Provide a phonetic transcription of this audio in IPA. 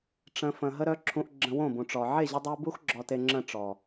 ʈ͡ʂ ə̃˨ f ə̃˨ ɦ ə˦ ɾ œ˦ ǁʰ ũ˧ ʔ ɡ͡ǁ ə̃˧ w õ˦˨ b ũ˨ ʈ͡ʂ ɔ˨ ʕ e˦˨ ʑ ə˧ dˤ o˧ b u˦ x ɡ͡ǁ ɔ˧ t e˧ ŋ͡ǁ ə̃˦˨ ʈ͡ʂ ɔ˨

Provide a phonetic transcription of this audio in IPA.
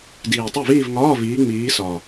d iː˨˩ tˤ ɘ˥˩ v iː˥˧ v ŋ ɒː˧˥˧ v iː˨˦ ŋ͡m iː˨˦ s ɒ˨˩

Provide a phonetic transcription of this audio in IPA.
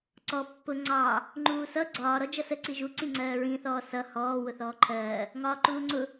ǀ ɔ pː ʊ ŋ͡ǀ ɑ | ŋ͡ǃ uː s ʌ ɡ͡ǀ ɒː ɾ ɔ d͡ʒ ʌ s ə ǀ i ʒ u ǀ ĩ ŋ͡ǀ ɜː ɹ ĩ θ ɔː s ʌ h ɔː w ʊ θ ɔː ǃʰ ɜː | ŋ ɒː ǃ uː ŋ͡ǀ ʊ

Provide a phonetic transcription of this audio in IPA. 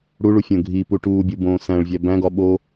ɽ u ɭ u fʲ õ ɡʱ i p u ʈ uː bʲ u b õː s æ̃ ɭ vʲ æ b æ̃ ɡ ɒ ɓ o

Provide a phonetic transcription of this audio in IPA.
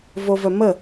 v o v œ m ə

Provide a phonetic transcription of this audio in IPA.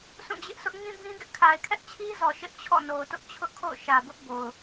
sʰ ũ˦˨ d͡ʑ ɪ˦ ʔ sʰ ʊ˦ ʔ ŋ ĩ˦ b ĩ˦ ɡ ɪ˦ ʔ kʰ a˨ ɪ̯ kʰ ɛ˦ ʔ t͡ɕʰ i˦ z ɔ˨ ʃ ɪ˦ ʔ t͡ɕʰ ɔ̰˦˨ n o˨ ʊ̯ t ʊ˦ ʔ t͡ɕʰ ʊ˦ ʔ kʰ o̰˦˨ ʊ̯ ʃ ä˨ b ʊ˦ ʔ b o˨ ʊ̯

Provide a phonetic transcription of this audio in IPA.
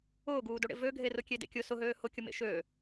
ʊː ɡ uː d o ɽ ḛ v ø ɡʱ e r ʊ kʲ e d ḛ kʲ ʊ s ʊ ɦ øː h ʊ kʲ ʊ m ḛ ʃ øː

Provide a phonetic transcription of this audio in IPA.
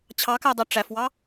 t͡ɕʰ ɑ k æ dˤ e ʈ͡ʂ æ f w ɑ

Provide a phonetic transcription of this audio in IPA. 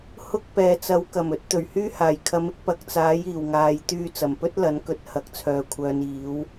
h ʊ˥ k̚ p ɛː˨ t͡s ɐ˨˥ w k ɐ˨˩ m ɵ˨˥ t̚ t̪ ɵ˨˩ ɥ h yː˥ h aː˨˩ j kʰ ɐ˨˥ m ɪ˧ k̚ p ɐ˨˥ k̚ t͡s aː˨˥ j iː˨˩ w ŋ aː˨ j t̪ yː˧ t͡s ɐ˨˩ m p ɵ˥ t̚ l ɐ˨˥ n k ɵ˨˥ t̚ h ɐ˨˥ k̚ t͡sʰ œː˨ kʷʰ œː˨˧ n iː˨˥ w

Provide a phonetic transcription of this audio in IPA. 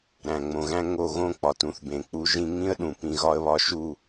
ɾ æ̃˨ ŋ͡m õ˨ ɣ æ̃˦ ŋ o˦˨ ɣ õ˦ k͡p ɒ˨ t ũ˧ θ b ẽ˨ k͡p u˧ ʒ ĩ˦ ŋ ĩ˦ ə̯ ɗ ũ˨ p ĩ˧ ɣ ɒ˦ ə̯ β ɒ˦ ʃ u˦˨

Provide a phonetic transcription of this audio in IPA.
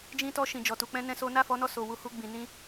d͡ʒ ĩ˧ t ɔ˧ ʃ ĩ˨ d͡ʒ ɔ˨ t u˨ k͡p ɛ̃˧ n ɛ̃˦ s o˦ n a˦˨ f ɔ˨˦ n ɔ˧ s o˨ w u˧ h u˧ ɡ͡b ĩ˨ n ĩ˧

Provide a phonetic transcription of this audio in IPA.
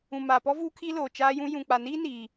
ũ˨ m aː˨ p ɔ˦ v uː˦ kʰ iː˦ l oː˨ t͡ʃ aː˦ j ũ˦ j ũ˨ k͡p a˨ n iː˦ n iː˦

